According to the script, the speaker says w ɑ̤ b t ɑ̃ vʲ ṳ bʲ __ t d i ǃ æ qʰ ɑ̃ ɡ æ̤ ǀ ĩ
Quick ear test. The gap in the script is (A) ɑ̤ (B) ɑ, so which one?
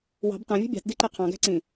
A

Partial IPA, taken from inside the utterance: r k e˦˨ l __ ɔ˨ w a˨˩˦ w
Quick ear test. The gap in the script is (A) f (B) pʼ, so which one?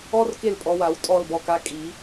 B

